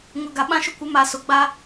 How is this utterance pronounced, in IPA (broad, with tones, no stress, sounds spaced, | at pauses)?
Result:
ŋ ʊ˨ ɡ a˨ ɓ ã˦ ʃ ʊ˦ kʷ ɪ˨˦ m a˨ s ʊ˨ ɡ͡b a˦